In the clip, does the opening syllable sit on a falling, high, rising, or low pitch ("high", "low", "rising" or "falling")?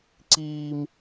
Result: high